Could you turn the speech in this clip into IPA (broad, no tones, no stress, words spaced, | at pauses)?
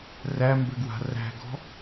ræmbɘɡwa̤ ræ̤ɡɔ̤